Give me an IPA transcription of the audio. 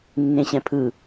nː ẽ ɕ ɛ̃ pʰ ɯ

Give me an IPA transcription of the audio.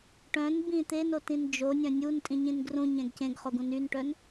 ʈ œ̃ n b ĩ t̪ e n o t ĩ n d͡ʒ o nʲ œ̃ nʲ u n tʼ ĩ ɲ ĩ n ɡ r ũ ɲ ɛ̃ ɡ c ẽ ɡ χ o ɡ ũ n y n ʈ œ n

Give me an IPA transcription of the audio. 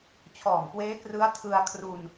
t͡ɕʰ ɔː˨˩ m k w eː˦˥ k r ɯ˦˥ a̯ tʰ ɯ˧ a̯ kʰ r u˧ n

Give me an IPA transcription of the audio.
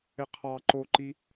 ɪ qʰ ɑ ǃ o ǃ i

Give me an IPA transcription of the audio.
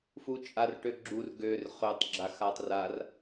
f u t͡ʃʼ a r ʈ ø ɡ͡ǁ u r ɡ ø r χ ø tˤ ɡ͡ǁ a x a tˤ r a r

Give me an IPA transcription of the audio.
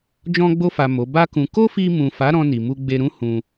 d͡ʒ ɔ̃˧ ɡ͡b o˧ f a˨ m o˨˦ b a˦ k ũ˧ k o˦ f i˧ m ũ˨ f a˨˦ ɾ ɔ̃˧ n i˨ m u˧ ɡ͡b e˧ ɾ ũ˦ h ũ˧

